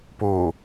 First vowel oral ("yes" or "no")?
yes